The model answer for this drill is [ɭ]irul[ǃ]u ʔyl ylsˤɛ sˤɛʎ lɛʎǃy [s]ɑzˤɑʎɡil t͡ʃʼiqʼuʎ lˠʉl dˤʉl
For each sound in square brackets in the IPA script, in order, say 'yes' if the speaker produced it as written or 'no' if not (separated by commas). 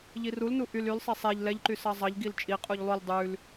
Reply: no, no, yes